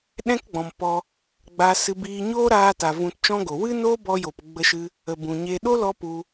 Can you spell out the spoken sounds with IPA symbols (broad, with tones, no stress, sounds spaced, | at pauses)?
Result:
ɗ ɛ̃˦ k ɡ͡b ɔ̃˨ m p ɔ˧ | ɡ͡b a˧ s ɨ˧ b iː˧ ɲ oː˦ ɾ aː˧ t a˨ v ũ˧ t t͡ʃ ɔ̃˦ ɡ o˨ w ɨ˦ n oː˦ b ɔ˧ j oː˨ p ɡ͡b ə˧ ʃ ɨ˧ | ə˨ b ũ˨ ɲ e˧ ɗ o˦ l ɔ˧ p u˧